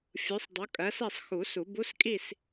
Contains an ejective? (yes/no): yes